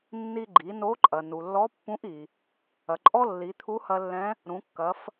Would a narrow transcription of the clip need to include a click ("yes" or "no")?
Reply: yes